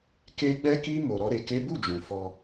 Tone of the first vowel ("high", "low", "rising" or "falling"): high